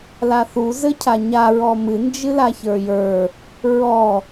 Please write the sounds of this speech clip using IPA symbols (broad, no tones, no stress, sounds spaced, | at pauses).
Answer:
l a θ u z ɘ cʰ a ɲ a ɹ ɔ m ɨ n d͡ʒ ɨ l a ç ə˞ j ə˞ | ɹ ɔ